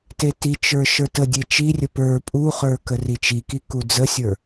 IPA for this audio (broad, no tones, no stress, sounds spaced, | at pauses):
t e t i t͡ʃ ə˞ ʃ ə˞ t ə dʲ e t͡ʃ i rʲ ə p ə˞ pʼ u χ ə˞ k ə r i t͡ʃ i k i k u d͡z ə sʲ ə˞